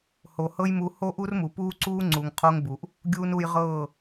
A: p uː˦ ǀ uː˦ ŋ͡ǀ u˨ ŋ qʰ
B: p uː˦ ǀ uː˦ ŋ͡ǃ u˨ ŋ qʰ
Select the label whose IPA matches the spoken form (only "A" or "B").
A